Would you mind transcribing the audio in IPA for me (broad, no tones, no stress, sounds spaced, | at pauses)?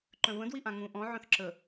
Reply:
ǃ œ̃ v ə̃ d w i ʔ ã ŋ ũ ʔ ɔ̃ ʕ œ̃ θ ǁ ə